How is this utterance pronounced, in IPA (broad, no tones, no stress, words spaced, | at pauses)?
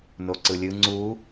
noǀɯlʲɯ ŋ͡ǀu